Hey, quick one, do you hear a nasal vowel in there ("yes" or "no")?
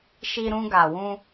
yes